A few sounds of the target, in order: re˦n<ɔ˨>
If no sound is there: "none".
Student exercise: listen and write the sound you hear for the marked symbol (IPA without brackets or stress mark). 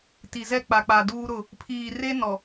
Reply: ɔ˨